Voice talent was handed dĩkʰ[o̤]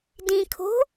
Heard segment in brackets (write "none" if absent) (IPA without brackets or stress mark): o̤